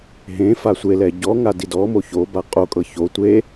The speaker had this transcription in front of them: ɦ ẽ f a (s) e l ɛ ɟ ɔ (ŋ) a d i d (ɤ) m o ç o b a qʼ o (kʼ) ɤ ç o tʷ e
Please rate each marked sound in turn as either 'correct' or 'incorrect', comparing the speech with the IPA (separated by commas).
incorrect, correct, incorrect, correct